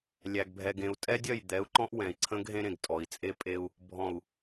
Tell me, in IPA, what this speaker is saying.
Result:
lʲ æ˨ ɡ bʱ ɛ˨ ɡ ẽ˨ u̯ tʼ ɛ˦ dʲ œ˦˨ j d̪ ɛ˨˦ u̯ ǃ ɔ̃˦ ʔ w ɛ̃˨ i̯ ǀʰ ə̃˦ ɡ ɦ ẽ˦ ɾ ẽ˨ ɡ tʼ ɔ˨ i̯ t͡sʼ e˦ pʼ e˦ u̯ | bʱ ɔ̃˨ u̯

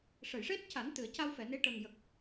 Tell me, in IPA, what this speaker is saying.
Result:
ʂ ə˨˩˨ j ʂ e˦˥ t̚ c a˨˩˦ n t̪ ɨ˨˩˨ ə̯ c a˧ w f ɛ˨˩˨ n e˧˥ ʈ ə˨˩ ŋ j ə˨˩ k̚

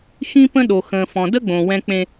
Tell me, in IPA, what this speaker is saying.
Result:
x ĩ˦ p ə̃˦ ɗ o˨ x ə̃ː˨ f ɔ̃˨ d ə˦ ɡ͡b õ˨ w ɛ̃˦ k͡p ẽ˦

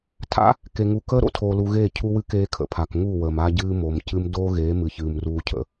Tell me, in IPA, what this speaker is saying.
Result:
tʰ a̰˦ | k e˨ ŋ u˨ k əː˦ ɾ o̰˦ tʰ oː˨ l u˨ ɣ eː˦˨ cʰ u˦ w ɨ˦ k eː˦ kʰ ə̰˨ pʰ a˨ k ŋ u˦˨ w ə˨ m a˦ ɟ ɨː˦ m o˨ m c ɨ˦ m d oː˦ ɣ eː˨˦ m ɨ˨ ç ɨː˨ m r uː˦ cʰ ə̰˦

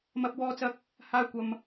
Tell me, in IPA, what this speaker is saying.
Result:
m ɐ˧ p̚ w ɔː˧ t͡s ɐ˧ k̚ | h aː˧ kʷ ɐ˨ m

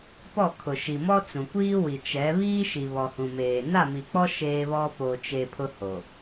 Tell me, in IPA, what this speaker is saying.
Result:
p ɔ˦˨ kʰ ʊ˨ ʃ i˨ m ɔ˦ t͡s ũ˨ kʷ iː˦ w i˨ t͡ʃ ɛ˨˦ β iː˦ ʃ i˨ β ɔ˨ h ũ˨ m eː˨ n a˦˨ m i˨ k͡p ɔ˦ ʃ eː˦ β ɔ˦ p o˨ t͡ʃ e˨ pʰ ʊ˦ h o˨

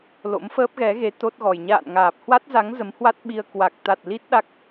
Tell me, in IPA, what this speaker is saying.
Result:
l o̰˧˥ m f əː˦˥ p̚ ɣ ɛ˨˦ ɣ e˨˦ t̪ o˦˥ t̚ ɣ ɔ˨˩ j ɲ a̰ː˧˨ n ŋ aː˨˩ p̚ h w a˦˥ t̚ z a˨˦ ŋ z ə˨˦ m h w a˦˥ t̚ ɓ i˧ ə̯ k w a˨˩ k̚ t̪ a˨˩ t̚ l i˦˥ t̚ ɗ a˦˥ k̚

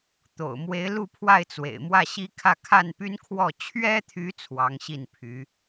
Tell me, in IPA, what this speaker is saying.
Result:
t̪ o̰˨˩ ʊ̯ m w e˧˥ ɪ̯ l u˥˧ pʰ w a˥˩ ɪ̯ t͡s w ḛ˨˩ ɪ̯ m w ä˥˩ ɕ i˥ kʰ ä˥˧ kʰ a˥˩ n p y˥ n kʰ w ɔ˥˩ t͡ɕʰ ɥ ɛ˥ t̪ʰ y˧˥ t͡sʰ w ɑ˧˥ ŋ ɕ i˥˩ n pʰ y˧˥

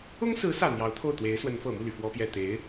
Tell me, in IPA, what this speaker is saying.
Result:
ʊ˥ ŋ s ɹ̩˧˥ s ä˨˩ n̪ j ɑ˧˥ ʊ̯ t̪ʰ o˥˩ ʊ̯ t̪ w e˧˥ ɪ̯ s w ə˧˥ n f ɤ˨˩ m u˥˩ l y˩ f w ɔ˥ p j ɛ˥˩ t̪ e˧˥ ɪ̯

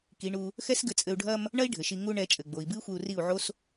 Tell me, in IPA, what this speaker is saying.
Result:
k i˨˦ ɳ u˧ | x ɛ˦ s ɡ ɘ˧ t͡sʼ ɘ˧ u̯ ɖʱ ɐ˧ m | ɳ ɐ˦ i̯ ɖʱ ɘ˨ ʃ i˧ ŋ u˦ ɳ ɛ˨˦ t͡ʃʼ ɘ˨ ɡ͡b o˨ i̯ b ɨ˦ i̯ xʷ e˧ u̯ r i˦˨ u̯ ʕ o˦ s

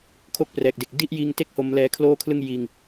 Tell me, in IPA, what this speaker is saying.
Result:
kʰ o˥˩ k̚ p r ɛː˨˩ k̚ d e˨˩ k̚ d i˥˩ ʔ j iː˧ ŋ t e˥˩ k̚ h o˦˥ m l ɛː˦˥ kʰ l oː˥˩ kʰ l ɯ˥˩ ŋ j iː˧ ŋ

